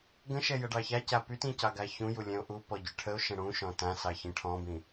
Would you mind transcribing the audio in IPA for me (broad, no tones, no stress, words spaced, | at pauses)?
ɡə̃ʃɛ jəɖɑçaca pytĩ cɑɡaçũju lʲɛ̃o̯ʔupɔ ɟyʈʰəo̯ʃə̃ ɽũ ʃɔ̃tãsɑ çĩʈʰɔ̃bĩ